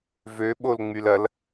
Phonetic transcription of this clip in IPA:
v ø ɓ o l ŋ͡m y l ɐ l

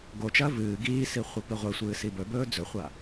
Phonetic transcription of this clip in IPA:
ɡ o t͡ʃ ɐː v ɨː ɡ iː s i χʷ ɐ p i ʁʷ e sʷ ɨː s i b ɵ b ɵː d͡z ɵ χʷ a

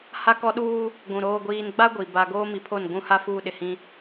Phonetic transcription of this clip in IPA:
h a˦ k ɔ˦ ɗ uː˦ | ɡʷ ũ˨ ɾ oː˨ ɡʷ iː˨ n ɡ͡b a˦ ɡʷ i˨ b a˨ ɡ oː˦ m i˨˦ pʰ o˦˨ n ɡʷ ũ˦ h a˦ f uː˦ ɗ ɪ˨ h ĩ˦

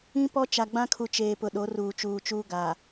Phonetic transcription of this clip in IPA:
ĩ˦ p ɔ˦ t͡ʃ a˨ ɡ͡b ã˦ kʰ u˨ t͡ʃ eː˨ p ʊ˨ ɗ o˨˦ r uː˨ t͡ʃ uː˨ t͡ʃ uː˦ ɡ a˨

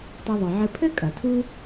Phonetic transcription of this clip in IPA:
tˤ ɘ˨ ðˤ ɨ˩ ʕ ɘ˨ pʰ ɘ˥ kʼ ɐ˩ tʰ u˦

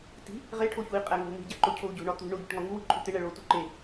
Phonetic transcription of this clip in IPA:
t i̤ | ʁ e ʈʰ o ç u i̯ qʼ æ ŋ o̤ n̪ i̤ ɟ æ ǃ o cʰ o u̯ ɟ o̤ ɳ ɒ t̪ ṳ ɳ o ɟ i̤ ʈ ŋ ɒ ŋ u w i̤ ǃʼ u t̪ e ɳ æ ɭ o u̯ t u ǃ e

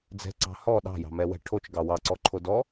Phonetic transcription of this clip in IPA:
d͡z ɛ̤ ǀ ɑ̤ h ɔ ɗ ɑ̤ j ɑ̤ m ɛ w ɛ̤ ʈʰ o t͡ʃ ɡ ɑ w ɑ ǀ ɔ ǃʰ o d ɔ

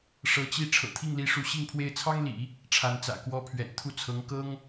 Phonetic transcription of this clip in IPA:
ʂ ɤ˧˥ t͡ɕ i˥˩ ʈ͡ʂʰ ɤ̰˨˩ t̪ʰ i˥˩ ŋ l i˧˥ ʂ u˧˥ ɕ i˥˧ ŋ pʰ w e˥˩ ɪ̯ t͡sʰ ɑ˥ ŋ l ḭ˨˩˦ | ʈ͡ʂʰ a˧˥ n t͡s ä̰˨˩ k w ɔ˧˥ pʰ ɥ ɛ̰˨˩ n t̪ʰ u˥˩ t͡sʰ ɤ˧˥ ŋ k ɤ˥ ŋ

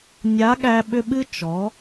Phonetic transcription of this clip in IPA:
nʲ a˨˦ ɠ æ˧ ɓ ʏ˧ ɓ ɨ˦ t͡ʃ ɔ˨˦

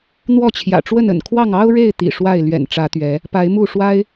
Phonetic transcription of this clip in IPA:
n̪ w ɔ˥˨ t͡ɕʰ j ä̰˨˩ ʈ͡ʂ w ə˥˨ n ə̰˨˩ n kʰ w ɑ˥˨ ŋ ɑ˦ ʊ̯ ɻ e˥˨ ɪ̯ t̪ ḭ˨˩ ʂ w a˥˨ ɪ̯ l ɥ ɛ̰˨˩ n ʈ͡ʂ ä˨˦ t̪ ɥ ɛ˨˦ | p a˨˦ ɪ̯ m u˥˨ ʂ w a˦ ɪ̯

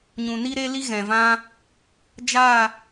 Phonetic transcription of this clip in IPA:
ɲ ũ˨ n i˦ ɾ e˦ l i˦ ɣ ɛ̃˨ v ã˦ | d͡ʒ a˦˨

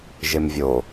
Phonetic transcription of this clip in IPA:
ʒ e m vʲ o

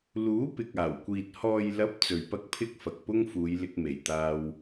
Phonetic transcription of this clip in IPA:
l uː˨˥ p ɪ˨ k̚ aː˨˩ w kʷ iː˨ t̚ h ɔː˨ j l ɐ˨˥ p̚ t͡s ɵ˨ ɥ p ɐ˥ k̚ pʰ ɪ˥ k̚ f ɐ˨ k̚ p ʊ˥ ŋ f uː˨˧ j l ɪ˧ k̚ m e˨˩ j t̪ aː˧ w

